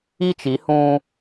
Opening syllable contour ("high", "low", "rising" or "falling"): high